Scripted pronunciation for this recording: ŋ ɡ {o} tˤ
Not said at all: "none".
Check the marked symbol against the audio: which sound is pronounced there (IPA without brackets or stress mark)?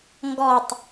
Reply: ɔ